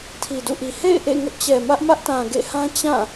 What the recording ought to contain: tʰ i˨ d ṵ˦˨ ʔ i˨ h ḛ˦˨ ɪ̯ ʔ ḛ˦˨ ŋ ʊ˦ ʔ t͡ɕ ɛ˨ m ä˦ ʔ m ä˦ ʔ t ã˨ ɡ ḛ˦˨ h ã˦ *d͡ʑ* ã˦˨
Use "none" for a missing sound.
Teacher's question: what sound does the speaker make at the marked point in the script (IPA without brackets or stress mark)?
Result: t͡ɕ